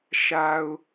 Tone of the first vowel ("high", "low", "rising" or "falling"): low